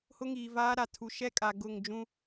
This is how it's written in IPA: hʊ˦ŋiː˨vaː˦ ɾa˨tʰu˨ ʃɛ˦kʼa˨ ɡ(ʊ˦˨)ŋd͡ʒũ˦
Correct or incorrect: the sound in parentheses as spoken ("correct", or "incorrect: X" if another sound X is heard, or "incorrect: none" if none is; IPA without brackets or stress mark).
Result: correct